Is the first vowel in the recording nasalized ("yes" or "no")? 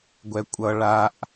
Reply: no